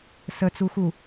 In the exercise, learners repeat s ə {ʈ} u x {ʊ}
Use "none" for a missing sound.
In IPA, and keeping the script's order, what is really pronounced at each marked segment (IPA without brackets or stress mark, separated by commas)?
t͡s, u